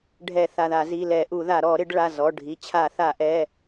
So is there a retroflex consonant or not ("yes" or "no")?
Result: yes